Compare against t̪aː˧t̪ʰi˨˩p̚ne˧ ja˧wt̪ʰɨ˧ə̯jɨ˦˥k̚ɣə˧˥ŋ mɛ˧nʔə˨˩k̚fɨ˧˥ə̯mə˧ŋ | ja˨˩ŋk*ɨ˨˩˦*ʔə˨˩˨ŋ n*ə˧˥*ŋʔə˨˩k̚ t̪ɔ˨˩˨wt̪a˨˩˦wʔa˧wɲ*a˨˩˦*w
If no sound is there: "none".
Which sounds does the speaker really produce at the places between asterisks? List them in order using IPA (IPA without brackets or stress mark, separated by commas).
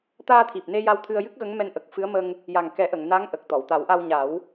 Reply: ɛ˨˩˦, a˧˥, a˨˩˦